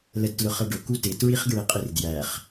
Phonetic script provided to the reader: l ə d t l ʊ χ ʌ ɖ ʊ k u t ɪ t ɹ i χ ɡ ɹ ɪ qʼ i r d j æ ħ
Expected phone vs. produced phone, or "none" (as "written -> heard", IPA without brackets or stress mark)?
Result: ħ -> χ